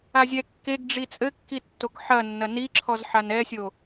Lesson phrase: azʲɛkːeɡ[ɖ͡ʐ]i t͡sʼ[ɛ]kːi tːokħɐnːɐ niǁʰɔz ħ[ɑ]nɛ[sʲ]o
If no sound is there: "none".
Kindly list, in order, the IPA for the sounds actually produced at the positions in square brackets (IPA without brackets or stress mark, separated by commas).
ɖ͡ʐ, ɘ, a, sʲ